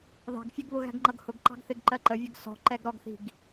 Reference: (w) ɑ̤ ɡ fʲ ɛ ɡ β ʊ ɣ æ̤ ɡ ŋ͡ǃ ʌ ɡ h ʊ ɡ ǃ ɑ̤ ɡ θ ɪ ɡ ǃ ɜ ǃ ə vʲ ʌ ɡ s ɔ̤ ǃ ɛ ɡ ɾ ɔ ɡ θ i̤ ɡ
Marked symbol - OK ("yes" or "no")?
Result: no